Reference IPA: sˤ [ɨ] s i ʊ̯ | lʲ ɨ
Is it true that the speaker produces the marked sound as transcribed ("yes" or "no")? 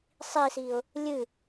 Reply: no